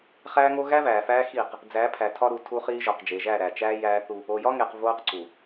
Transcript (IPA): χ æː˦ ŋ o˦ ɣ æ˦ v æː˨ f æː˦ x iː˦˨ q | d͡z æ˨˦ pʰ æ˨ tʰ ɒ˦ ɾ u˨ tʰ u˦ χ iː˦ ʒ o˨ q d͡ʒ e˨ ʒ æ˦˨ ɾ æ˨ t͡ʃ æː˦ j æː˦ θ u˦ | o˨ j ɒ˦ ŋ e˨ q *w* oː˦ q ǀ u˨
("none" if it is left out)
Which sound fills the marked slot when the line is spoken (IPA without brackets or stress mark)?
v